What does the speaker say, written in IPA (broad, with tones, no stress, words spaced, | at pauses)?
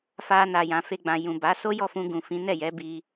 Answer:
fa˧ na˨jã˨fe˧ ɡ͡bã˨jũ˨ ba˨˦ so˦jɔ˦˨fũ˧ ɡũ˨fĩ˨˦nɛ˦˨jɛ˨˦ bi˦